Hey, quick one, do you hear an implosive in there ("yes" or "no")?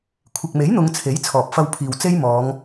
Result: no